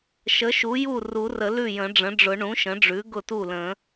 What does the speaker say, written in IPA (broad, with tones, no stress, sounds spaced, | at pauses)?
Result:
ʃ ə˩˥ ʃ u˩˥ j u˥˩ r u˨˩˦ r ə˨˩˦ l ʉ˥˩ j ə̃˨˩˦ ɖ͡ʐ ə̃˩˥ ɖ͡ʐ ʊ˨˩˦ ɳ ũ˩˥ ʃ ə̃˩˥ ɖ͡ʐ ʉ˩˥ ɡ ʊ˥˩ t u˥˩ l ə̃˨˩˦